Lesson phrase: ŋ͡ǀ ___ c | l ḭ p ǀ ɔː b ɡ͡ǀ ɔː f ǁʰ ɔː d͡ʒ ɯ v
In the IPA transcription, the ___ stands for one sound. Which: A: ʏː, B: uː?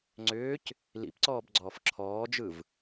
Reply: A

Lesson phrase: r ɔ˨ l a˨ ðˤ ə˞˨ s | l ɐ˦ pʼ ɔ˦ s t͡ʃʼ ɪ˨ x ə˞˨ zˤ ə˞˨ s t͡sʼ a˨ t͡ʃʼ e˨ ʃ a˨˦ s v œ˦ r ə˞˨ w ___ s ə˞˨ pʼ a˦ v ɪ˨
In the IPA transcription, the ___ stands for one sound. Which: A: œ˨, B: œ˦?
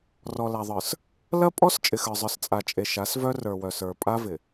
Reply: A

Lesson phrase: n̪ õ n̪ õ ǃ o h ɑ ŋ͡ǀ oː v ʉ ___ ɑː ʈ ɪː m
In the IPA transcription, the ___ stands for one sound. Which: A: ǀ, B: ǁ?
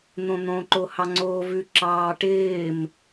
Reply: B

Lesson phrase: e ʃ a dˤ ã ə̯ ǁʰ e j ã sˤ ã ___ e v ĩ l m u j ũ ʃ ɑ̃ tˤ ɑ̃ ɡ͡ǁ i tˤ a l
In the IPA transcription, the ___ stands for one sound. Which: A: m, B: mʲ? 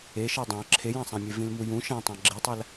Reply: B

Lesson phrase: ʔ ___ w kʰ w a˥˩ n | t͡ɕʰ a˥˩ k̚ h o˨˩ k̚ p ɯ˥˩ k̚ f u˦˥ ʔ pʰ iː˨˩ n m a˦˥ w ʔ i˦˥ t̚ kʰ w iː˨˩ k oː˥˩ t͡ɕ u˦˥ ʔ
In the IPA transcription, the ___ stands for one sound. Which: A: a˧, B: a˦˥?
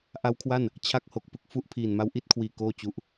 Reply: B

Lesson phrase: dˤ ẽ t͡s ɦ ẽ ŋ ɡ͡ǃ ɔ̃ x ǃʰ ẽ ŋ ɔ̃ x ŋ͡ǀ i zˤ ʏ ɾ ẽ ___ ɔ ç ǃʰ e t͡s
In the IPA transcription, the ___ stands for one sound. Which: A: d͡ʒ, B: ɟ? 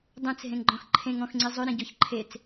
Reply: B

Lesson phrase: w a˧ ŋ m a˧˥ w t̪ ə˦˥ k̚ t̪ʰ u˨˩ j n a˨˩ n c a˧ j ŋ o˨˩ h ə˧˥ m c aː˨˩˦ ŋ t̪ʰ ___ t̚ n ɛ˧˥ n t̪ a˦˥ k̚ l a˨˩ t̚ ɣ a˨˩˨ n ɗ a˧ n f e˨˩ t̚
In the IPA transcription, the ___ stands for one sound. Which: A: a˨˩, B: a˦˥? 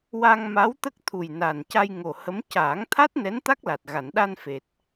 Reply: B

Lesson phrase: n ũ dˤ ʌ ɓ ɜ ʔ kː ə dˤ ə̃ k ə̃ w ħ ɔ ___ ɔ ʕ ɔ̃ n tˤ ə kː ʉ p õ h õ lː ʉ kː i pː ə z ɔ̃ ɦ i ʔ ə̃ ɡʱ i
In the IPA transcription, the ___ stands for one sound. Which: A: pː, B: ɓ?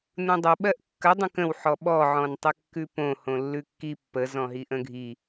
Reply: B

